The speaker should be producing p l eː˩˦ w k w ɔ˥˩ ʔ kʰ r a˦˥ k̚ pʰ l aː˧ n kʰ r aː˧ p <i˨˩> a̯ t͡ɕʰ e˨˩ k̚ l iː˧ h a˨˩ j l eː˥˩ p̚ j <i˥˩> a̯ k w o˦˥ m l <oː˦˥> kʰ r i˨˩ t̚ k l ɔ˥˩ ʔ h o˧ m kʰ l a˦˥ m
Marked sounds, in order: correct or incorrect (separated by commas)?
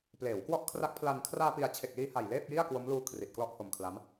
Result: correct, correct, incorrect